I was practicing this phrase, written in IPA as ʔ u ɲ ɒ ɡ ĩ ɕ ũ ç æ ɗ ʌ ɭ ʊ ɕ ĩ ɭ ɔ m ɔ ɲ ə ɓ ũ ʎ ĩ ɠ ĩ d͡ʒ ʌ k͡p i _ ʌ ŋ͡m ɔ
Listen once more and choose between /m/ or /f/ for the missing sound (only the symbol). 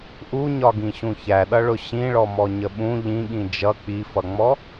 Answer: f